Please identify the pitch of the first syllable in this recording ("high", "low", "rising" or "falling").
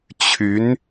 rising